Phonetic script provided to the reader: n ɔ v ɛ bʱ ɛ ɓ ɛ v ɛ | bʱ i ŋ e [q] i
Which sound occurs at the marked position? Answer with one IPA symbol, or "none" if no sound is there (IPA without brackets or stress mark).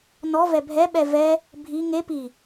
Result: p